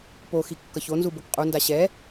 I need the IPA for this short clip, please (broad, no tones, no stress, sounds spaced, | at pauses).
p o x i kː ʌ ç o n z u b o k qʼ u n d a ɕ ɛ